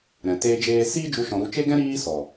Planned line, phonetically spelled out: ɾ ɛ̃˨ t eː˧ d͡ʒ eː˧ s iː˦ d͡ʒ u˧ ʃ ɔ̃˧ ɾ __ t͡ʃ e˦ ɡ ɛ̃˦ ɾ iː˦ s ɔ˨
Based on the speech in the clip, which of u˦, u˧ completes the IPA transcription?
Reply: u˧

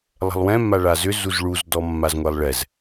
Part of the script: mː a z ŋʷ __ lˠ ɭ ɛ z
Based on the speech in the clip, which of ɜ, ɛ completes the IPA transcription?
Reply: ɛ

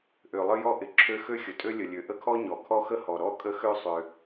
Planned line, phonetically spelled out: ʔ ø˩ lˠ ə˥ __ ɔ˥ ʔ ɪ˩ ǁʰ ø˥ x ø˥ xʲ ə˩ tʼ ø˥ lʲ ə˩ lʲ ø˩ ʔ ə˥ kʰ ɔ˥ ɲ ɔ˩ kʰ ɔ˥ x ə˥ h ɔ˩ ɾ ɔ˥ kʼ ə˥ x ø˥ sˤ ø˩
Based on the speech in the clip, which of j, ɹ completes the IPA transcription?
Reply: j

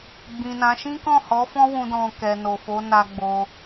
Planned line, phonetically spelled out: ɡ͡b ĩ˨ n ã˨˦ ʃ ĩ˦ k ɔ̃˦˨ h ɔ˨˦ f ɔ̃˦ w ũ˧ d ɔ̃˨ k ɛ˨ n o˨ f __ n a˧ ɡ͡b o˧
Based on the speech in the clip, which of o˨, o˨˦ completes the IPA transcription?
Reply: o˨˦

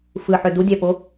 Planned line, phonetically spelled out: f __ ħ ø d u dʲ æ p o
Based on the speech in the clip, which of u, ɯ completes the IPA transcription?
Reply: ɯ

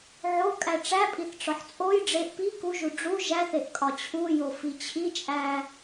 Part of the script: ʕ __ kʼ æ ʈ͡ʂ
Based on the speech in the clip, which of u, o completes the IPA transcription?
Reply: o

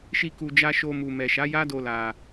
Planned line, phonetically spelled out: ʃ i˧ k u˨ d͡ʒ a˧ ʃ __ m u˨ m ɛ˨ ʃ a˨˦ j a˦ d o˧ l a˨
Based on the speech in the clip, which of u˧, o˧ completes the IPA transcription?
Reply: o˧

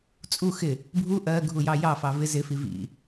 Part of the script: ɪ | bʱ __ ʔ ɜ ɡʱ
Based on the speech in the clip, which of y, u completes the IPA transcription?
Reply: u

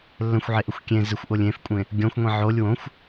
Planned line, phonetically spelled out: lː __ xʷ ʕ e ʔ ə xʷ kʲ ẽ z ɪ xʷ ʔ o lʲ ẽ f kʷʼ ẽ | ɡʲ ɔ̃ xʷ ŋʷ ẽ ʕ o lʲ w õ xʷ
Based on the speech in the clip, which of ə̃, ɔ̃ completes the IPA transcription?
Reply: ə̃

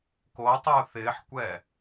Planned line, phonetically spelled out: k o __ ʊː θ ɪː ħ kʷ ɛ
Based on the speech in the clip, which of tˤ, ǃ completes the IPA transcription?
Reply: tˤ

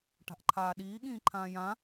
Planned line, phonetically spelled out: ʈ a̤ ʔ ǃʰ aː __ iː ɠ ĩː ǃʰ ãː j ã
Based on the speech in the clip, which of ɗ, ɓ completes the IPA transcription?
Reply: ɗ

